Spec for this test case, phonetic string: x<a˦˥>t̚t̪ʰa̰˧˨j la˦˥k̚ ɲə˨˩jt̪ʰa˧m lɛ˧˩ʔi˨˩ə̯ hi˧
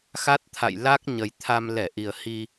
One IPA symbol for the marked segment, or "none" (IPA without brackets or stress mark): a˦˥